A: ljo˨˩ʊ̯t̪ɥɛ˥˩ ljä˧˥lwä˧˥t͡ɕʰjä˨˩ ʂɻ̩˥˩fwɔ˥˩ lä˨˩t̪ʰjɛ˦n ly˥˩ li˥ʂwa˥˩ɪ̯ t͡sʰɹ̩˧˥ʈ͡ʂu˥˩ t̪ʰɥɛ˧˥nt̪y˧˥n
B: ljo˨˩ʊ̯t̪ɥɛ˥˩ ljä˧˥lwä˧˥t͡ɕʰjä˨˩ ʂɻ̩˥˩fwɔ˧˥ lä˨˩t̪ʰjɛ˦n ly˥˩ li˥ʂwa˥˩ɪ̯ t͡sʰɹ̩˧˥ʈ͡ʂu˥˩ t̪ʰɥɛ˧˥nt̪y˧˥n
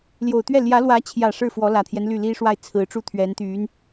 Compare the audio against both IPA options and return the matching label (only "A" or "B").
B